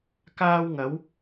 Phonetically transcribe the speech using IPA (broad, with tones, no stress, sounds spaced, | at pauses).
k aː˥ w ŋ ɐ˨˥ w